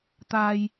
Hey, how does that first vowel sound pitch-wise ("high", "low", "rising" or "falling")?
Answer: low